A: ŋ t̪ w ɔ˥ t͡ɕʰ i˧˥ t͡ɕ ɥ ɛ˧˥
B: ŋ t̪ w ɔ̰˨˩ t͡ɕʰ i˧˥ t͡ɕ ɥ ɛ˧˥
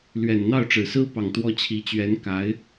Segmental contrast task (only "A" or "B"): A